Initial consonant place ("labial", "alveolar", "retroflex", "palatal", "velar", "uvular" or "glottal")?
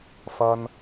labial